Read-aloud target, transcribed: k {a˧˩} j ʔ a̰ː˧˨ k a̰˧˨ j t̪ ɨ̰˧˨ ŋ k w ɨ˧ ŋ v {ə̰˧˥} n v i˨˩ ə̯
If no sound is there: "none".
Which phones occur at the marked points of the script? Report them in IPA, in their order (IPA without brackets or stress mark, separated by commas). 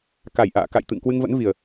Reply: a˧˩, ə̰˧˥